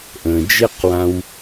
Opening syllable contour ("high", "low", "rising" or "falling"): low